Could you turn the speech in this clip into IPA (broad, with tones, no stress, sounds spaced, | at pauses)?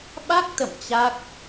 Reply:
ɓ a˦˥ k̚ t̪ ə̰˧˨ m t͡ɕ a˦˥ k̚